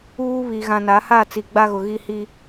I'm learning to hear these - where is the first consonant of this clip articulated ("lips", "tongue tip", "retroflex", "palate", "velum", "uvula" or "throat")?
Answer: lips